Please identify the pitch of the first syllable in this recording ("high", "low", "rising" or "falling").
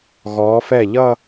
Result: rising